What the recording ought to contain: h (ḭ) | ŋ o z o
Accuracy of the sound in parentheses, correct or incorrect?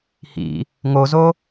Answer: correct